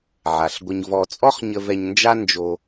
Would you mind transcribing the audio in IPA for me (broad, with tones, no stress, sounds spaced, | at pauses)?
ʕ a˩ ɬ ɡʷ ə˧ ɲ v ɔ˧ t͡sʼ ɔ˥ χ ɲ ə˧ v ɛ˧ ɲ n d͡ʒ a˥ n d͡ʒ o˧